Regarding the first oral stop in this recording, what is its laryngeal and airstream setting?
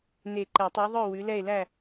click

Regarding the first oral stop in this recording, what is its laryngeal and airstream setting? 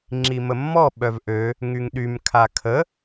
click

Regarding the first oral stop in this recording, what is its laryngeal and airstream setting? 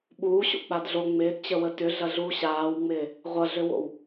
implosive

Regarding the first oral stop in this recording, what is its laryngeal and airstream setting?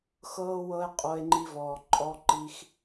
ejective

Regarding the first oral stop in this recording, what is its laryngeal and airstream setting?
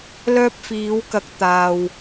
plain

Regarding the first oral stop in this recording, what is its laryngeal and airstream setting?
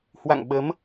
implosive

